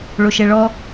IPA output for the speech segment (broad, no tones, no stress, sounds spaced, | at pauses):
ɭ o ʃ ɛ ɭ ɔ